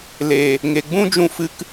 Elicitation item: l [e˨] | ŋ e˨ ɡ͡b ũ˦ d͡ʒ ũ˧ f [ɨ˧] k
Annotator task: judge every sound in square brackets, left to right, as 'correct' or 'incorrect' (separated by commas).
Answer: correct, correct